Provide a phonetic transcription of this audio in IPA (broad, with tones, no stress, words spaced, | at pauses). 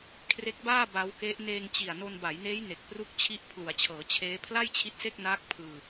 kʰre˦˥k̚baː˥˩ ba˦˥wke˦˥ʔ neː˧ŋt͡ɕi˨˩a̯ no˧nba˩˦jneː˦˥j ne˨˩k̚pru˥˩k̚t͡ɕʰi˥˩ʔ pʰlu˩˦a̯t͡ɕʰɤː˩˦t͡ɕʰeː˦˥ pʰla˥˩jt͡ɕʰi˦˥t̚se˥˩k̚naː˦˥k̚ pʰɯː˧